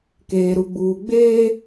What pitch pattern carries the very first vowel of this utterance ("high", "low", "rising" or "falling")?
low